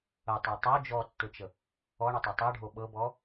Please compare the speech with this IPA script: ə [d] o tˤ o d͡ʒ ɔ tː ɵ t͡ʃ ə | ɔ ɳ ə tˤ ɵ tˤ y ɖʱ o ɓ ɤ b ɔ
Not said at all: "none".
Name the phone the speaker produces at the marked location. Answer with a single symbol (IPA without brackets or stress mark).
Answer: tˤ